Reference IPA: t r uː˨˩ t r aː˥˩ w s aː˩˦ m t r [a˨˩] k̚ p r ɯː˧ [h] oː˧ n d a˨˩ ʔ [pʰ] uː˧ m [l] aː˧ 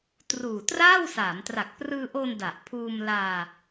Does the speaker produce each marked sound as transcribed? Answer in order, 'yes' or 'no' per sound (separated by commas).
yes, no, yes, yes